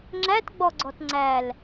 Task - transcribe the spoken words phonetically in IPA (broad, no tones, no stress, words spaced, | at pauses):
ŋ͡ǁætɡ͡bɔɡ͡ǀɔt ŋ͡ǀæl